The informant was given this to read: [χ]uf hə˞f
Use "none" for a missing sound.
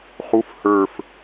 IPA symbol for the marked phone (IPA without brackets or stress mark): χ